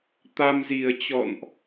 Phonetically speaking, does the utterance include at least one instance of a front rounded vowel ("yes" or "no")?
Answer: no